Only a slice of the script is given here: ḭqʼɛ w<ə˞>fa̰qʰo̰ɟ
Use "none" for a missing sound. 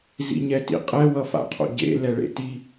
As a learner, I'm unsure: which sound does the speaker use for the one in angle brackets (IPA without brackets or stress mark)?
ʌ